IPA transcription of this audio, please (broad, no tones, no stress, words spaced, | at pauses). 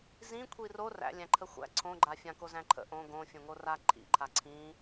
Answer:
zĩkʷʰi ro ræ̰ lʲæ̃ǃʰəxʷæ̰ ǀʰõɡ͡ǃa fʲãkozæ̃ǃʰə̰ ʔõ ɡõ fʲõŋora ǃʰḭǃʰa ǀʰĩ